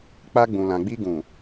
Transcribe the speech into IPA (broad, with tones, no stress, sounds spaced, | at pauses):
k͡p a˧ ɡ͡b ũ˨ l ã˨ ɡ͡b i˧ ɡ ũ˨